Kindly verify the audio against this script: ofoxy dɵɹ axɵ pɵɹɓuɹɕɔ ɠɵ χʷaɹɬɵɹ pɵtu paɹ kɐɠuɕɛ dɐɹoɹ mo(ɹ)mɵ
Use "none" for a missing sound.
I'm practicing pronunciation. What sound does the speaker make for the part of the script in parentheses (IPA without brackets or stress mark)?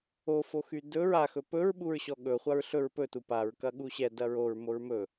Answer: ɹ